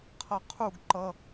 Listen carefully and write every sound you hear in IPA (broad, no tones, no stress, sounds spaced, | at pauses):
qʰ ʌ qʰ u ɡ ǃ ʌ